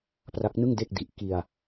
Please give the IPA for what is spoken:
p r a˦˥ k̚ n ɯ˥˩ ŋ d e˥˩ k̚ d i˨˩ ʔ k i˧ a̯

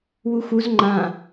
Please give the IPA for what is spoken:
w u x u z ŋ͡ǃ ã

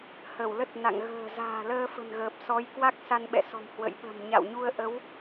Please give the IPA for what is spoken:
h ə˧˩ w l ə˦˥ t̚ n a̰˧˨ ŋ ɣ ə̤ː˨˩ z a̤ː˨˩ l əː˧ f ə̤˨˩ n ɣ əː˨˩ p̚ s ɔ˨˦ j k w a˦˥ k̚ s a˧ n ɓ ɛ̰˧˨ s ɔ̤˨˩ m h w ə̰˧˨ j ɓ ə̤˨˩ m ɲ a̰˧˨ w ɲ u˧ ə̯ ʔ ə˨˦ w

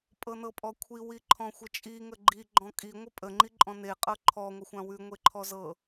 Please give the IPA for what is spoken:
pʼ ɤ n ɤ pʼ ɔ kʷʰ i w i ǃʰ ɔ̃ xʷ ə t͡ʃʼ i ŋ ə ɡ͡ǃ i ɡ͡ǃ ɔ̃ kʼ i ŋʷ ə pʼ ə ŋ͡ǃ i ǃʼ ɔ̃ n e qʼ ɤ ǃʰ ɔ ŋʷ ə xʷ ã w ʉ ŋʷ e ǃʰ ɔ z ɤ

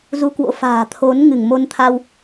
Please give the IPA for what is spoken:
z u˧ k w o̰˧˥ f a̤ː˨˩ t̪ʰ o˨˦ n ŋ ɨ˧˩ ŋ m o˧ n t̪ʰ a˧ w

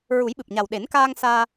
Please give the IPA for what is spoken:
ɹ u˨˩˦ j ɓ ɨ˨˩ p̚ ɲ a˨˩ w ɗ e˨˩˦ n k aː˧ ŋ s aː˧

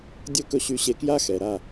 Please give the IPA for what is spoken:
dʲ ɵ˦ k ɵ˧ ɕ y˧ ɕ e˧ k j a˦ x ɛ˨ ɾ a˦˨

